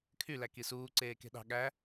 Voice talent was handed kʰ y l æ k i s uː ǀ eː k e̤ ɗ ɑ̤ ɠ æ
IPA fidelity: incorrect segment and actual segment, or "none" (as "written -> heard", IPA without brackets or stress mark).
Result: none